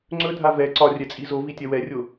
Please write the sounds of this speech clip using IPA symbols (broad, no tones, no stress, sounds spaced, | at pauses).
ŋ͡ǀ ɵ dʱ a v ɛ ǀ ɒ rʲ ɛ t͡sʼ i z o v i tʲ ɛ w ɛ rʲ o